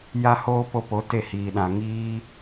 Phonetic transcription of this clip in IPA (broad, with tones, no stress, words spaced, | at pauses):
ja˦hoː˦ po˧po˨˦ te˦˨hiː˨ ɗã˨ŋiː˦